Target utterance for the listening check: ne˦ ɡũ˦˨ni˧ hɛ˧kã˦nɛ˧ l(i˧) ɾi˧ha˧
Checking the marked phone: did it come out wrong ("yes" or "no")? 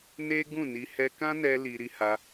no